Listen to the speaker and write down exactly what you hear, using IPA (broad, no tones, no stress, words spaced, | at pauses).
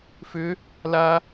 fʏ | la